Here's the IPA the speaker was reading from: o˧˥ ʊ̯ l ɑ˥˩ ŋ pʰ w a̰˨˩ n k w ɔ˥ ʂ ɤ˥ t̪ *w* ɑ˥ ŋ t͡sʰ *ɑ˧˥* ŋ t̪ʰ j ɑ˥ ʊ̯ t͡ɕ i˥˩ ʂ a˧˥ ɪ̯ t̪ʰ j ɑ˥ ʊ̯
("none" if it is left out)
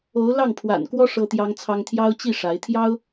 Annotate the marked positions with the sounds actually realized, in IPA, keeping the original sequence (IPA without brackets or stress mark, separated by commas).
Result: j, ɑ˥